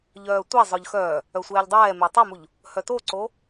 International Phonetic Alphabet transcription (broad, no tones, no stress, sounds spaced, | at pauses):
ʎ œː tʷ e zˤ œ ʎ x œː | œ sʷ ɛː ʎ dˤ ɛː m eː tˤ a m u ʎ | h œ t o ǀ o